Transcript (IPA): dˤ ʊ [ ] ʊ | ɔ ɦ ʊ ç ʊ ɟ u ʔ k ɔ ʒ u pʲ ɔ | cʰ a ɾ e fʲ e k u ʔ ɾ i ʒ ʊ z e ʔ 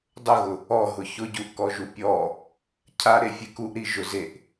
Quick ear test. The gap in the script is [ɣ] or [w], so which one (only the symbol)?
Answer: ɣ